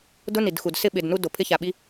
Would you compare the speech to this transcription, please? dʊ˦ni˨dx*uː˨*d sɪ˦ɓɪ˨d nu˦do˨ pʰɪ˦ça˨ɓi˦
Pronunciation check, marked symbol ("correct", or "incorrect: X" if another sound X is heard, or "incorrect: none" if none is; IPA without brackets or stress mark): incorrect: u˨